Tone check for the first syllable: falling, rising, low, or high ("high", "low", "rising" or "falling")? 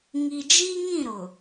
low